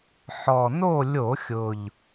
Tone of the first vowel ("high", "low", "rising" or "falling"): low